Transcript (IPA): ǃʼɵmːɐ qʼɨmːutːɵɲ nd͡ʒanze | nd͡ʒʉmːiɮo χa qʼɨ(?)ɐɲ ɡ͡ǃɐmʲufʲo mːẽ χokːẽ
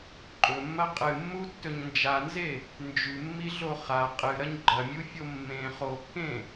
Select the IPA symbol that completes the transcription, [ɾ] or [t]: ɾ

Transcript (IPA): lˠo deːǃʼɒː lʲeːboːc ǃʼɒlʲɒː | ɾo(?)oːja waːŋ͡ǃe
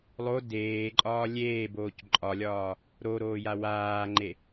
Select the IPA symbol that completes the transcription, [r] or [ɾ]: ɾ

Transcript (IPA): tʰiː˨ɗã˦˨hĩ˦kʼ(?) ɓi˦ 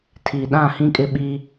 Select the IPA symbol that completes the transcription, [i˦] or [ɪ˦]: ɪ˦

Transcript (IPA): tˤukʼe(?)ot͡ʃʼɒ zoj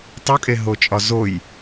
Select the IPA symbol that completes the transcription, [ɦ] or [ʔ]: ɦ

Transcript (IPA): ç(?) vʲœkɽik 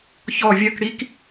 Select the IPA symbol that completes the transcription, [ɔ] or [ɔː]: ɔ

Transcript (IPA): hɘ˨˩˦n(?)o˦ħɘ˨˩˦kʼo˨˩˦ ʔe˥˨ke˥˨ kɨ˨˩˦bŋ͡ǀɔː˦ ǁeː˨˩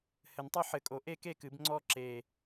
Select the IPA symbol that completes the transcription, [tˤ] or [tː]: tˤ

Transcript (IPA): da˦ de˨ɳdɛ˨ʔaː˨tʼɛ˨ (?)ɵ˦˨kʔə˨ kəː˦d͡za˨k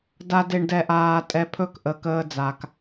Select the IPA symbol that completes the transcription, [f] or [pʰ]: pʰ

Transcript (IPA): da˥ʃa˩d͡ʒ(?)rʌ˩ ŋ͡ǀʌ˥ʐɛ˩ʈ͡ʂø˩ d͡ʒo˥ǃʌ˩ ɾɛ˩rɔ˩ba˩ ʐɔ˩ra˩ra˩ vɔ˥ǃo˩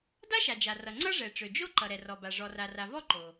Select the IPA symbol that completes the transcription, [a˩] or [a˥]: a˩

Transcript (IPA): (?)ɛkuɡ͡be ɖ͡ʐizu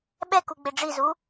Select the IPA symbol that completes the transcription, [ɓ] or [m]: ɓ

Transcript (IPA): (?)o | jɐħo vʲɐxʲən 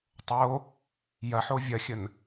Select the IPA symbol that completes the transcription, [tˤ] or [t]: tˤ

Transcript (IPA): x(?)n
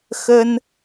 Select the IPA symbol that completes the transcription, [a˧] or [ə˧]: ə˧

